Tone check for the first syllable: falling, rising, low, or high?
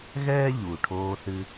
high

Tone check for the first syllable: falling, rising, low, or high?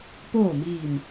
falling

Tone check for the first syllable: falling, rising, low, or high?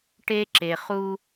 high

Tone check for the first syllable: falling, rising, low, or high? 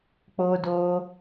high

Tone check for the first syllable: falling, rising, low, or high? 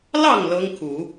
falling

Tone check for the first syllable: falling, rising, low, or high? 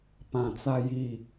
low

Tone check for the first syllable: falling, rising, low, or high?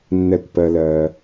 falling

